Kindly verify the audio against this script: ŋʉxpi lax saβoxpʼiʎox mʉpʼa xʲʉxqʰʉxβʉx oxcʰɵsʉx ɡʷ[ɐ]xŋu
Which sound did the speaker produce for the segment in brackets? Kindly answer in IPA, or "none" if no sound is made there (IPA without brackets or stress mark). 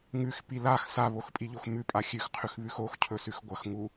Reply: ɐ